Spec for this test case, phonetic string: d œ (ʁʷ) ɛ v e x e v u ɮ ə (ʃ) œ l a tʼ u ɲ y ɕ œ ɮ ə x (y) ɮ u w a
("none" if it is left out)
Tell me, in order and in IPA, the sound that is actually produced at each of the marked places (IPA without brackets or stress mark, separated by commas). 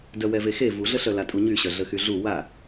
w, ɬ, y